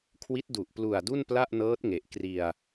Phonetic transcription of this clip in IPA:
kʰ w i˦˥ t̚ d u˨˩ ʔ p l u˨˩ a̯ d u˥˩ n p l a˥˩ ʔ n ɤː˦˥ t̚ ŋ e˨˩ ʔ k r i˧ a̯

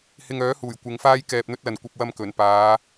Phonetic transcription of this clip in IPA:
h ɪ˧ ŋ œː˨˥ h uː˨˩ j kʷ ɪ˨˧ ŋ f aː˥ j k ɛː˧ p̚ n̪ ɵ˥ t̚ l ɐ˨ n kʷ ɐ˧ p̚ w ɐ˧ m k ɵ˨˩ n p aː˨˧

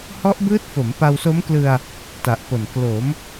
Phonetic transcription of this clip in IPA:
h ɔ˦˥ ʔ b ɯː˦˥ t̚ f o˩˦ m p a˧ w s o˦˥ m k l ɯ˧ a̯ | t a˨˩ ʔ p o˨˩ n k l o˩˦ m

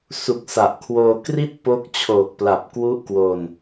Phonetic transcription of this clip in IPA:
s u˨˩ k̚ s a˨˩ ʔ kʰ w oː˧ k r i˥˩ t̚ p o˦˥ k̚ t͡ɕʰ oː˨˩ k̚ p l a˨˩ p̚ k w u˦˥ ʔ k w o˧ n

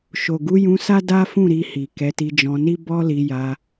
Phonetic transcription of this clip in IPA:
ʃ o˨ ɡ u˨˦ j ũ˧ s a˦ d a˦ f ũ˦˨ ɾ i˧ h i˨ k ɛ˨˦ t i˧ d͡ʒ ɔ̃˧ n i˦ b ɔ˦ l i˧ j a˧

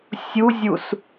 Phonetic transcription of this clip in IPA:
sʲ u zʲ u s

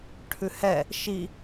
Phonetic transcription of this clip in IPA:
ʈʰ ʉ h ɛ | ʃ i

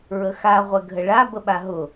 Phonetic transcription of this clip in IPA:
ɹ ə x a ʁʷ ɛ ɡʱ ə ɭ a b ə ɓ a ɦ ʊ

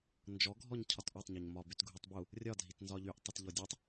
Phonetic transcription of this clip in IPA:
n d͡ʒ ɔ ɡʱ ɔ ɲ cʰ ɒ t ʔ ɔ tˤ ɲ ɔ ɲ m ɒ b y t ɡʱ u tˤ b u | rʲ ɒ dʱ i t n z ɒ ʎ y ʔ tˤ i t ʎ ɔ dʲ ɔ tˤ

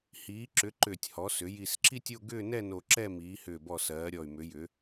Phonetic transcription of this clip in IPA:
h iː˩˧ ǁ ʏ˩˧ ǃ ʏː˨˩ tʲ h ɔ˩˧ s ʏ˩˧ j i˨˩ s ǁ i˦˨ tʲ o˦˨ ɡ ʏː˦˨ n ɛ˦˨ n o˨˩ ǁ ɛ˦˨ m iː˩˧ h ʏː˨˩ b ɔ˨˩ s ɜː˩˧ ɾʲ ɔ˨˩ y̯ m ʏ˩˧ j ʏ˩˧

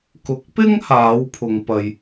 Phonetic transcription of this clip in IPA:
k ʊ˨˥ k̚ p ɪ˥ ŋ h aː˨˥ w pʰ ʊ˨ ŋ p ɐ˨ j

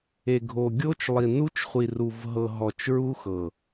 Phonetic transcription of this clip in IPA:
e˨ ɡʱ o˨ ɡʲ o˦ t͡ʃ lˠ i˨ n u˦ t͡ʃ χʷ i˨ r u˨ v ɦ ɤ˨ ɦ ɔ˨ t͡ʃ ɹ u˦ x ɤ˨

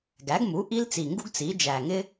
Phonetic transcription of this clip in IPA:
ɡ æ˩˥ ɡ m u˩˥ ʔ i˥ l t͡s i˨˩ ŋ ɡ u˥ ɡ t͡s i˩˥ d͡ʒ æ˨˩ ŋ ɪ˥

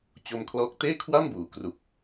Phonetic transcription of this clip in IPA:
t͡ɕ o˧ m kʰ l ɔː˦˥ k̚ t eː˥˩ kʰ w a˥˩ m b uː˩˦ k r u˨˩ k̚

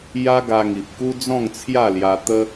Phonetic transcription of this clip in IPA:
j a˦ ɡ a˧ ŋ i˨ p̚ k u˦ d͡z ɔ̃˥˧ ŋ t͡sʰ j a˥˧ l j a˧ t̪ ə˦

